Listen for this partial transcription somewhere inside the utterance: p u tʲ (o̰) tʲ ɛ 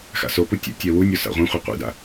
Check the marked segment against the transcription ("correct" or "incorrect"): incorrect